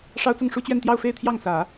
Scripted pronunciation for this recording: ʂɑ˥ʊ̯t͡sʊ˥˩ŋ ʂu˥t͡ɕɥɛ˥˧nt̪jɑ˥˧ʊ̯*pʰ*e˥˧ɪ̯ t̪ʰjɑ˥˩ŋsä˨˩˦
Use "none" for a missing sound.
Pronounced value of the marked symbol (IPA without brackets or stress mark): f